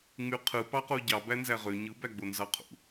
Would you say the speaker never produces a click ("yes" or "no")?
yes